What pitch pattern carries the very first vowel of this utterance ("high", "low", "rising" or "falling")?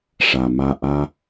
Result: low